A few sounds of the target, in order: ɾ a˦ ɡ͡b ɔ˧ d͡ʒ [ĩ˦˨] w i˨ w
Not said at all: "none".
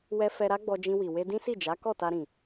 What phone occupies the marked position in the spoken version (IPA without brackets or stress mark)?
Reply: ĩ˧